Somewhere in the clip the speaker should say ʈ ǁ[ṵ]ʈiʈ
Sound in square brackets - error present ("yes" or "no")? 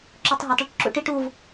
no